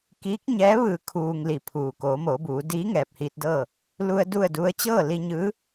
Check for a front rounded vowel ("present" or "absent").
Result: absent